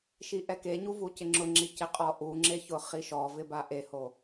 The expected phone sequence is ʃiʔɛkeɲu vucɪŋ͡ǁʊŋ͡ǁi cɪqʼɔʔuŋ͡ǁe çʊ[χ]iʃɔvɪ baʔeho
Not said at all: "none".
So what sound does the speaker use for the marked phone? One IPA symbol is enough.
χ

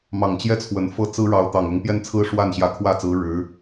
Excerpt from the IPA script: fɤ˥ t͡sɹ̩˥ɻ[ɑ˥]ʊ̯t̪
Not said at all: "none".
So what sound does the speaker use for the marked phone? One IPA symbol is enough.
ɑ˧˥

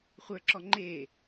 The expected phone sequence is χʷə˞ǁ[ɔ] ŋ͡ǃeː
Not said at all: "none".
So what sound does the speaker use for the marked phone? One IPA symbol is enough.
ɔ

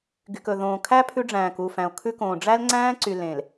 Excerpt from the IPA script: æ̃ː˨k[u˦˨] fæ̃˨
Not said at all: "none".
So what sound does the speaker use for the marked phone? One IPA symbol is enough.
u˦˨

